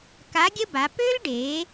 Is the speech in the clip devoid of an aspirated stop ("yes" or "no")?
yes